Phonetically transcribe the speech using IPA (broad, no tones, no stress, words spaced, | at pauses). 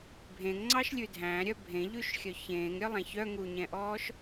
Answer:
bʱẽŋŋ͡ǀɑʃlʲʉ dʱæ̃ɾʲœ bʱẽʎʉʃxʲœ çẽːŋɾʲœlˠæ̃ çœŋuɲɛ̃ʔɔːʃ